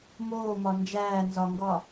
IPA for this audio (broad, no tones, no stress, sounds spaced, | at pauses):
m oː m ɒ n d͡ʒ æː n z ɒ ŋ ɡ ɒː